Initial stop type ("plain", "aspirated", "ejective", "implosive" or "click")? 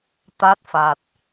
plain